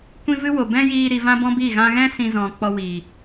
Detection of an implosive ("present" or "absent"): absent